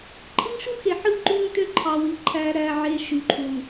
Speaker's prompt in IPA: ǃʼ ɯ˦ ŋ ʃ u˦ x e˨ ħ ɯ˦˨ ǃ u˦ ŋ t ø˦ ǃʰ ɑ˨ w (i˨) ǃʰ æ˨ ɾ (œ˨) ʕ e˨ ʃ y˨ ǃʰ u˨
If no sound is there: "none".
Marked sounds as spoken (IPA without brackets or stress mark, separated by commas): i˨, æ˨